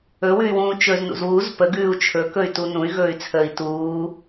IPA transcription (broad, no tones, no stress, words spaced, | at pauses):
ɵwʉy̯wũː t͡ʃɵznṵz wuz pəɡʉːu̯ t͡ʃʰɵkɵy̯tu nũy̯ɣɵːy̯t͡sʰəːi̯ tuː